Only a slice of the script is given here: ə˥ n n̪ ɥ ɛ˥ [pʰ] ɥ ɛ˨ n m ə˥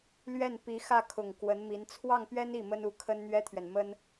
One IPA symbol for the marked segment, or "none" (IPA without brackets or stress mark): t̪ʰ